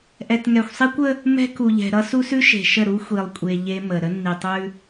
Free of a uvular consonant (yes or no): yes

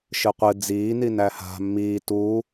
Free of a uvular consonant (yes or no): no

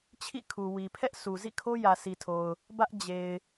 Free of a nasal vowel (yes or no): yes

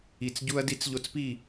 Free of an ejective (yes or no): yes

